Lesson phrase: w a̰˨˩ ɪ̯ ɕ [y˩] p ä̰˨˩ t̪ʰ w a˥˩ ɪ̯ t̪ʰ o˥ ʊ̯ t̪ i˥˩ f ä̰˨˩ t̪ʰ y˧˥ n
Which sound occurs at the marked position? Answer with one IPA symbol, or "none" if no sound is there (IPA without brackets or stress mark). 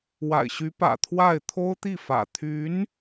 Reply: y˧˥